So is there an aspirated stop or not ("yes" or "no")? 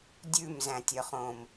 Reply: no